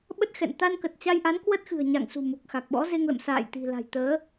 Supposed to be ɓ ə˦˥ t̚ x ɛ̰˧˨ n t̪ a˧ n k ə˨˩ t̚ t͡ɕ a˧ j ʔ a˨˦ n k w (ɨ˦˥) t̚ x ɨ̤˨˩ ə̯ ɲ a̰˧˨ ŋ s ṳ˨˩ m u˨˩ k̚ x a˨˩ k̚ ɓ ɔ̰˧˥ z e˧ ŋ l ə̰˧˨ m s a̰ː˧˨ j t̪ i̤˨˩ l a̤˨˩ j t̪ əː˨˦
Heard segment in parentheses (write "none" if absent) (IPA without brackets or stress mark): ə˦˥